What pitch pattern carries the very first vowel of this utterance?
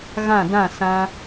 falling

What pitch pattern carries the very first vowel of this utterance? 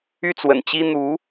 falling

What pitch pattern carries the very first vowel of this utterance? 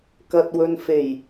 low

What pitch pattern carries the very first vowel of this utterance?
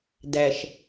low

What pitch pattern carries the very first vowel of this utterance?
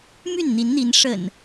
falling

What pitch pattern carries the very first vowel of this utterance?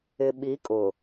low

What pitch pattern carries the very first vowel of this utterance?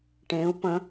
rising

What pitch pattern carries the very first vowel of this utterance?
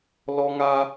high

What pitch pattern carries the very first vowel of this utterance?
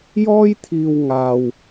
high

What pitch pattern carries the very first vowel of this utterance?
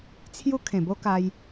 high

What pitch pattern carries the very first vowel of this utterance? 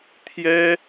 high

